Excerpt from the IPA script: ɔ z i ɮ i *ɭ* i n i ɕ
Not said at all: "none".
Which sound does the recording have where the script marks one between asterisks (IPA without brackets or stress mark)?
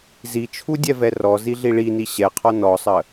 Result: ɭ